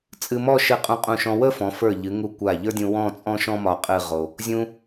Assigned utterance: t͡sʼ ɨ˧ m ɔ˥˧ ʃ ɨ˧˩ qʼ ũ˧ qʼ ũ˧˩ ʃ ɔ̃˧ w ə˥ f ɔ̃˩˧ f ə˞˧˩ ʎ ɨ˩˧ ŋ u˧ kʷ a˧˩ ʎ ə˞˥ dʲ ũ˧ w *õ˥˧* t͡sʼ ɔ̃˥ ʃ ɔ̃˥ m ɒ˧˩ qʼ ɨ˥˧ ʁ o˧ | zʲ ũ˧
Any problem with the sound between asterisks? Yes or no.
yes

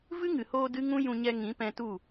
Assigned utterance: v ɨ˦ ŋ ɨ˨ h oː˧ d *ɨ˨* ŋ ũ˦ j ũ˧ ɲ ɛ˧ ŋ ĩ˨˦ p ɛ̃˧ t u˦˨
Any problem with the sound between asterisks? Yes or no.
yes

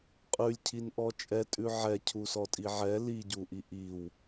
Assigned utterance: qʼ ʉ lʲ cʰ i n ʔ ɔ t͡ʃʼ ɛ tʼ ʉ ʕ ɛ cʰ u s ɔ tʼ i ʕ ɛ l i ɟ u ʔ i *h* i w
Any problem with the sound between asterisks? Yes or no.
yes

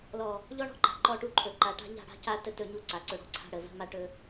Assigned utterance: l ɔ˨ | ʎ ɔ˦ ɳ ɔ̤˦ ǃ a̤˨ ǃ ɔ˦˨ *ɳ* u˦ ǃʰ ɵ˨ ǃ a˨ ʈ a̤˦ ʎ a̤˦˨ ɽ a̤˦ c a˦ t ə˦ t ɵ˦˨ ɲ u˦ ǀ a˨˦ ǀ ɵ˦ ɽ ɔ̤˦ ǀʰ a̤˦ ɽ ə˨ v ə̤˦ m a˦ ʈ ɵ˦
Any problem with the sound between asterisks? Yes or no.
yes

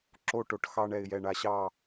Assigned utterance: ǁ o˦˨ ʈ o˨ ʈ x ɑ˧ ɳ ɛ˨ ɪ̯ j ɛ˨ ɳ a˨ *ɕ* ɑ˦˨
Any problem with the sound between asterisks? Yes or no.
no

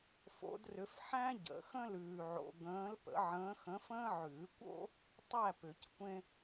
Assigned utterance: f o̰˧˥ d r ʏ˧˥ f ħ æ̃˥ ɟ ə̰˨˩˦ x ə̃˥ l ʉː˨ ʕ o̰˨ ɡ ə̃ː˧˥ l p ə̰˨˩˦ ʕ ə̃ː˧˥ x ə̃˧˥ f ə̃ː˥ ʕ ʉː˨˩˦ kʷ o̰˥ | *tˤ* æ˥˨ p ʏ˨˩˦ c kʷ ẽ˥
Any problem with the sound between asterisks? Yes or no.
no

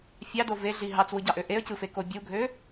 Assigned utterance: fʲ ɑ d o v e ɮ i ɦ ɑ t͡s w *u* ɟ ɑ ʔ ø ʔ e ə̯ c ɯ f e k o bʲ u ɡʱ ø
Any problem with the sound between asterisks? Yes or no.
yes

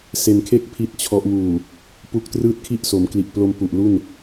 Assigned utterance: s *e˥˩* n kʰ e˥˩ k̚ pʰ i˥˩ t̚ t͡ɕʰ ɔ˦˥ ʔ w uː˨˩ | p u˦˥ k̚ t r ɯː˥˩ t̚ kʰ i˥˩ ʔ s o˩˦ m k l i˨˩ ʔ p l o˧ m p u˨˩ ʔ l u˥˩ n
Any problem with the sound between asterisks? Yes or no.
yes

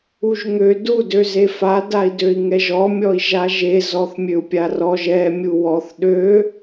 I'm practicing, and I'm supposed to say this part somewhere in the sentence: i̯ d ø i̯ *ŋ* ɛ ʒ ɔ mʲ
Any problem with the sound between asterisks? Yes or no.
no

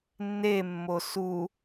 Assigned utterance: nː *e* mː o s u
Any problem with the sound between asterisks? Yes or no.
no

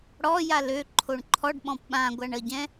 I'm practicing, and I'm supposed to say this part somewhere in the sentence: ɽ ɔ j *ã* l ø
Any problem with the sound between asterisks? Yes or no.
yes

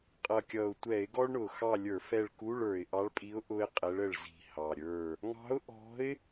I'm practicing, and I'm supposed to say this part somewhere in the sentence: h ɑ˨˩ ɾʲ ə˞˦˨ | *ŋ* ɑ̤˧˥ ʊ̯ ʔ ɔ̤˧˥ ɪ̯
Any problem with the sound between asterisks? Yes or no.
no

